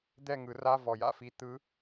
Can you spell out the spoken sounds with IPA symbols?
d̪ ɛ˥˨ ŋ ɯ˨˩˦ r a˧˥˧ v ɔ˨˩ j a̰˥˨ f i˨˦ t̪ ɯ˨˦

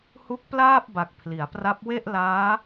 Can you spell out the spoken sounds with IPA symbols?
h u˦˥ k̚ p l aː˥˩ p̚ b a˨˩ k̚ pʰ l i˩˦ a̯ p r a˦˥ p̚ w e˥˩ ʔ l aː˦˥

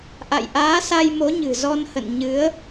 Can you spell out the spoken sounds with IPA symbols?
ʔ a̰˧˨ j ʔ aː˨˦ s a˧ j m o˨˦ ɲ ɨ̤˨˩ z ɔ˧ n h ə̰˧˨ n ɲ ɨ˨˦ ə̯

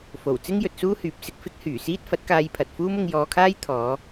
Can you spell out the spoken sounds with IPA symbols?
f o˨˩ w t͡s ɪ˥ ŋ j ɵ˨ t̚ s uː˥ h yː˨˥ p̚ s ɪ˨ k̚ f ɪ˥ k̚ h yː˨˩ s iː˥ t̚ f ɐ˨˥ t̚ k aː˧ j pʰ ɐ˨ t̚ f uː˥ m ʊ˧ ŋ j ɔː˧ kʰ aː˥ j t̪ʰ ɔː˨˧

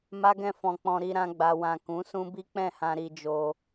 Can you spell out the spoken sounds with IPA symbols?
m a˦ ɡ ɛ̃˦˨ f ɔ̃˧ k͡p ɔ̃˧ ɾ i˧ ɾ ã˧ ɡ͡b a˨ w ã˨ k ũ˨˦ s ũ˦ b i˦ k͡p ɛ̃˦˨ h ã˧ ɾ i˧ d͡ʒ o˧

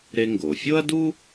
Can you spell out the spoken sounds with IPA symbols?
ɾ e˧ ŋ ɡ o˩ fʲ o˥ ɐ̯ d u˥

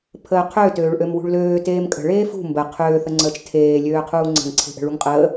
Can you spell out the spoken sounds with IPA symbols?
pʰ əː qʰ øː t øː ɭ ʔ ø m w ṳ ɭ l øː t eː m kʼ ə̤ ɭ eː f ṳ m b ə qʰ øː θ ə ŋ͡ǀ əː t͡ʃ tʰ eː lʲ øː qʰ uː ŋ͡ǀ ə̤ ŋ ǀʰ e̤ ʔ ə̤ ɭ u ŋ qʼ əː

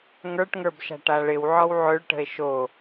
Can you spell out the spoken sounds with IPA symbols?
ŋ ə˞ ʈ ŋ ə˞ b ʃ a̤ ʈ a ɭ ɪ w ʕ ɔ w ʕ ø ɭ ʈ ə̤ e̯ ʃ o

